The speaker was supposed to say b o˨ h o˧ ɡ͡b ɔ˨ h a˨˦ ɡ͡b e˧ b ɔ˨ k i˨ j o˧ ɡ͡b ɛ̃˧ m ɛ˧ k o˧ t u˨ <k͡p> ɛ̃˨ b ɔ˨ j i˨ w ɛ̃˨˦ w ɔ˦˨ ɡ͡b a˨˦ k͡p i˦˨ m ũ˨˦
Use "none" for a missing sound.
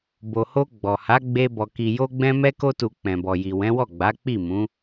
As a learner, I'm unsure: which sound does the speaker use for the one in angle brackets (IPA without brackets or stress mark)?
k͡p